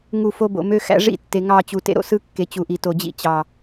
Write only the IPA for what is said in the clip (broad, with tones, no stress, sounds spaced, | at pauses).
ŋ u˦˨ f o˦ b o̰˨ m ø˦ x æ̰˦ ʐ ḭ˦ tː e˨ ŋ ɑ˦˨ t͡ɕ u˨ t ḛ˦ ɾ o̰˦ s ɯ˦ kː e˨ t͡ɕ u˨ ʔ i˨ t o˨ d͡ʑ ḭ˦ t͡ɕ ɑ˨